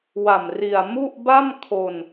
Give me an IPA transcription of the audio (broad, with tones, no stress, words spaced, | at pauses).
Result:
wa˨˩m ri˨˩a̯ mu˥˩ʔ ba˥˩mkʰo˧n